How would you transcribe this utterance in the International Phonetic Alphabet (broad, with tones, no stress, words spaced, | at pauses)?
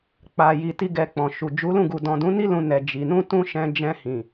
k͡pa˨ji˨ ti˧ ɡɛ˧k͡pɔ̃˨ʃu˨ d͡ʒu˨˦lũ˦˨ɡu˨ dɔ̃˨dũ˨˦ni˦ lũ˧nɛ˨ d͡ʒi˨ nũ˧tũ˧ ʃɛ̃˧d͡ʒɛ̃˧ hĩ˨